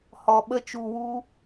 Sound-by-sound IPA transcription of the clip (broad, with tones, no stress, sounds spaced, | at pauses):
h ɔ˨ ɓ ə˧ t͡ʃ u˨ w u˧